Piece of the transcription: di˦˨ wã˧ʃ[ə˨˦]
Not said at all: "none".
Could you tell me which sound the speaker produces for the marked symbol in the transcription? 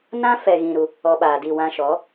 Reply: ɔ˨˦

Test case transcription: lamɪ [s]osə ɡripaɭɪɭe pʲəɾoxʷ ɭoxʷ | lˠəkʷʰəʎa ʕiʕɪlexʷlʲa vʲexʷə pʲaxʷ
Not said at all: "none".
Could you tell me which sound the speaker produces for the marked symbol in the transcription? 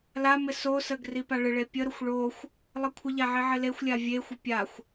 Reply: s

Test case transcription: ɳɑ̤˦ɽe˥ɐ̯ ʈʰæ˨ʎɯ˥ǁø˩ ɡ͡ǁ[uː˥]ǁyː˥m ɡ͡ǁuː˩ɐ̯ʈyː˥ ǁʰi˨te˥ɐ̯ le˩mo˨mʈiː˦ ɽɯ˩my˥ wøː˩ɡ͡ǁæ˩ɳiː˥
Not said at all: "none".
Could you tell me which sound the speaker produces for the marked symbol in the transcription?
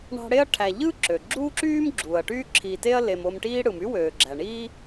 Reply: uː˥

